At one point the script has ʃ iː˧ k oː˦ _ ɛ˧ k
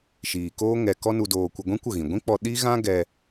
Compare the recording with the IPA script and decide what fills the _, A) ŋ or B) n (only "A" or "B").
A